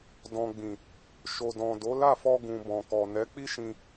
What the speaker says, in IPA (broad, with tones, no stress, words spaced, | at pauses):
dɔ̃˨ɡ͡bĩ˨ | ʃo˨dɔ̃˨do˨˦ la˦˨fɔ˧ ɡũ˨bɔ̃˨kɔ˨ nɛ˨˦k͡pi˦ʃĩ˧